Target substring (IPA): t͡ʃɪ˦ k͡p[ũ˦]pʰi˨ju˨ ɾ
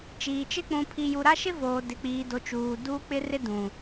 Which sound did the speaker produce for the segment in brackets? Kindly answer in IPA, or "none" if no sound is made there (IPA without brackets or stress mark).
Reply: ũ˨